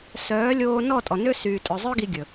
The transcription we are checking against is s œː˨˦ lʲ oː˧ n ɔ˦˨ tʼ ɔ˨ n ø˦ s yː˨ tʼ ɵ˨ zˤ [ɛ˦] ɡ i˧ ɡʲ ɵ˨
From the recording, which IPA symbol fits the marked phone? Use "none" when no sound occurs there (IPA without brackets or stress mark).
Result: œ˦